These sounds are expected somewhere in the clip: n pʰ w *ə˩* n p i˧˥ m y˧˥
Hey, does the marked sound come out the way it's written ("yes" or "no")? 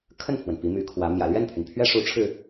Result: yes